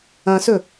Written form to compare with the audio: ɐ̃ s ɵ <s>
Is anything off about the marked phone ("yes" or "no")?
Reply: yes